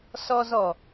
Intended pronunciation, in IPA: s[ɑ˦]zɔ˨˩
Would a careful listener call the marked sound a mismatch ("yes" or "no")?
yes